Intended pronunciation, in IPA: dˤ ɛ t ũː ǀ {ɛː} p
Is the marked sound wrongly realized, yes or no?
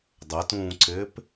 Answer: yes